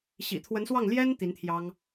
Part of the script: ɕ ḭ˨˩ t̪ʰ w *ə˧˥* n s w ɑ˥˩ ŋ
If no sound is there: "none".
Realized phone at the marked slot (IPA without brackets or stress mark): ə˧˥